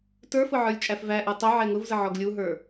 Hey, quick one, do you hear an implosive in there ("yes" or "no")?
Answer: no